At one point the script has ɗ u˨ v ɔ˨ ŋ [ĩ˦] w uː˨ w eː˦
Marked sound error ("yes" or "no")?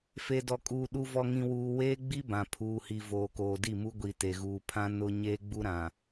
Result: yes